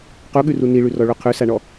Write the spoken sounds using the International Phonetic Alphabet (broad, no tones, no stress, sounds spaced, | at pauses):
q u ɠ ʉ r u n i ɭ ʉ r ɔ ɭ u qʰ ʉ s a ɳ ɔ